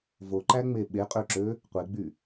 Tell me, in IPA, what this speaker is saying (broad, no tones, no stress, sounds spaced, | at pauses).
v o ǃ æ ŋ͡m e ɓ e qʼ ø ǁ ø | qʷ e ɡ͡b y